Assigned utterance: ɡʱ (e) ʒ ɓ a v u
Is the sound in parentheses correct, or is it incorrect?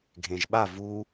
incorrect